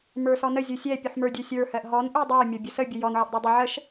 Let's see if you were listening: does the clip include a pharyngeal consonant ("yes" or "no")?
yes